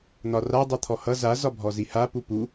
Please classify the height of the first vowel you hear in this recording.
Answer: low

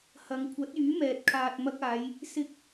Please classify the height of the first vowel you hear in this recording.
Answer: low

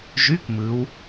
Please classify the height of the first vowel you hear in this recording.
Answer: high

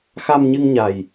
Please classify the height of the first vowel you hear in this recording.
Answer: low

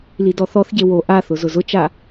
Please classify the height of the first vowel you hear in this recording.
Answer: high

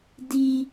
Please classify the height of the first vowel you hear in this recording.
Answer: high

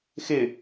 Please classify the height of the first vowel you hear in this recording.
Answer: high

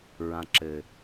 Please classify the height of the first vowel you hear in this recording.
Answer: low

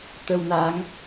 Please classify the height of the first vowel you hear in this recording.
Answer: mid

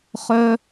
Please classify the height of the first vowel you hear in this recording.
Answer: mid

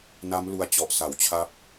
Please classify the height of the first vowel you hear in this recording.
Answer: low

